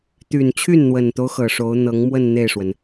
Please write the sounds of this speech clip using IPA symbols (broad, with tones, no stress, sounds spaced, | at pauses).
t̪ y˨˩ n t͡ɕʰ y˥˩ n n̪ w ə˨˩ n t̪ o˦ ʊ̯ x ɤ˨˩ ʂ o˧˥ ʊ̯ n̪ ɤ˧˥ ŋ m w ə˥˧ n n̪ e˥˩ ɪ̯ ʂ w ə˩ n